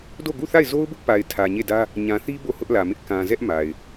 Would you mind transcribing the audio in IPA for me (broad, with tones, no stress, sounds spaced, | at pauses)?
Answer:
d o˦˨ ɡ u˦˨ θ a˦˨ ɪ̯ z o˦ ʊ̯ b ʊ˦ ʔ p a˨ ɪ̯ tʰ ä˨ ɲ e˦˨ d ä˦ | ɲ ã˨ θ i˦ b o˦˨ h ʊ˦ ʔ l ä˨ m ɪ˦ ʔ k ã˨ z ɛ˦ ʔ m a˨ ɪ̯